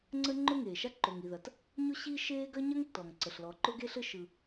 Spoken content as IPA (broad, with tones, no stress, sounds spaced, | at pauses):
ŋ͡ǀ ə˥ ŋ͡ǃ ʊ˥ ŋ eː˩ ʃ a˥ ǃ o˩ ŋ i˩ ð ɐ˩ t | ɲ ʊ˥ ɕ i˥ ʃ eː˥ ɡ ɐ˥ ɲ ɐ˥ ŋ tː ɔ˩ ŋ ǀ ə˩ ɬ l ɔ˩ ǃ ʊ˥ ɡ eː˥ ɬ ɘ˥ ʃ ɯ˩